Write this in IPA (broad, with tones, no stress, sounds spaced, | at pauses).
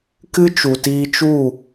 k ɨ˦ t͡ʃ u˨ t iː˧ t͡ʃ u˦˨